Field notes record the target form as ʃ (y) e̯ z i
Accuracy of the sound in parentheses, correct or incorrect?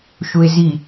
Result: incorrect